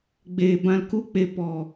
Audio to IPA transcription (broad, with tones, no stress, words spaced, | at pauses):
ɡ͡be˨ bã˨lku˧k͡pe˨ pɔ˨